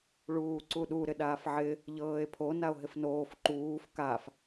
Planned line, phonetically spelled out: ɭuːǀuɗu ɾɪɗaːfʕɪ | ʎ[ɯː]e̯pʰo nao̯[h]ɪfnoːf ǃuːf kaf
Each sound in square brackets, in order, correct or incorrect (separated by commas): incorrect, incorrect